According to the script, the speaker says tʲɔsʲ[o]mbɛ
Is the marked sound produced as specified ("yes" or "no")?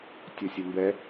yes